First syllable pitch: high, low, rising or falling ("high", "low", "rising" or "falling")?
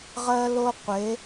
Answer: high